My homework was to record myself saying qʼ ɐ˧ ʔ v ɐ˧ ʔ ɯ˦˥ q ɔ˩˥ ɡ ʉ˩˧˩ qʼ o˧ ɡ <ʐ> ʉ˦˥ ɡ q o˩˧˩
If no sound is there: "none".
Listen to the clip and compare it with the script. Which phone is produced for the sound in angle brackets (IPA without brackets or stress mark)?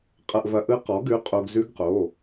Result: z